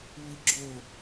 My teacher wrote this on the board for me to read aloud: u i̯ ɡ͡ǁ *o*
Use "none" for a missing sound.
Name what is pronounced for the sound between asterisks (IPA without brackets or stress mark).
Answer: o